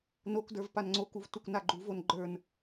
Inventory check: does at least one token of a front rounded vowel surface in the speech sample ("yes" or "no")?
no